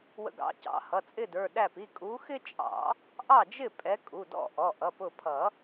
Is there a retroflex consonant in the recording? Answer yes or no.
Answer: no